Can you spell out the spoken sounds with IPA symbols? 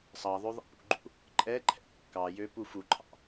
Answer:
sˤ ɑ ðˤ ø ðˤ ɛ̰ p ṵ ɡ͡ǃ ṵ | ǃʼ ɛ ǃʰ ɛ̰ kː ɑ j ø p u f u ǃʰ ɑ̰

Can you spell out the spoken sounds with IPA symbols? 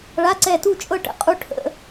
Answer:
ɭ a˧˥˧ ǀ ɛ˦˨ t u˦˨ t͡ʃʼ ɤ˦˨ ʈ ə̰˨˩˦ qʼ u˦˥ ʈʰ ə̰˧˥˧

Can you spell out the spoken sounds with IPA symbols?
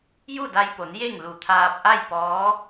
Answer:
j u˥˨ d a˧ j p o˩˧ n j e˥˨ ŋ l u˧˩ t̪ʰ aː˧ p̚ ʔ a˥˨ j p ɔː˧˥

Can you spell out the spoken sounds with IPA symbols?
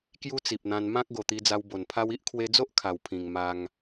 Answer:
k j u˦ t͡s i˨ p̚ n̪ ã˧ n m ã˦ k̚ ɡ o˨˩ t̪ i˧ d͡z a˧ w b o˨˩ n pʰ a˦ w i˦ ʔ kʰ w e˧ d͡z o˦ ʔ kʰ a˨˩ w pʰ ĩ˨˩ ŋ m a˧ ŋ

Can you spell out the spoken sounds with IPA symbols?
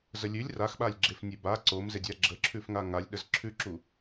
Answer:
z ə lʲ ʉ lʲ r a x ɓ a lʲ ɡ͡ǁ e f nʲ e b a ǀ o m z e dʲ a ɡ͡ǁ ə ǁʰ ʉ f ŋ a ŋ a lʲ ɗ ə z ǁʰ ʉ ǁ u

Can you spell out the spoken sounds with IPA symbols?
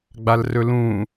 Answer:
ɡ͡b a l r ɵ l ũ

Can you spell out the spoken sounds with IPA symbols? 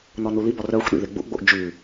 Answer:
n ɔ n u l i b ɔ r œ xʷ ɗ ḭ ð e ɡ͡b ṵ ʔ ɡ͡b o ʔ d͡ʒ ʉ

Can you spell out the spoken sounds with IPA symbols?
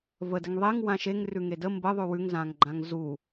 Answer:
v ə d ə ŋ ðˤ e ŋ w ã ʃ e ŋ r ʉ ŋ e d ə m b ə ðˤ ʉ w ʉ ŋ z ã ŋ ɡ͡ǃ ã ŋ z u

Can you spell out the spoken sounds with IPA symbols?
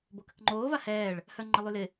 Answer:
b o k ə k ŋ͡ǃ oː v a h ɛː ɭ | h œ ŋ͡ǃ ə lˠ y l ɪ

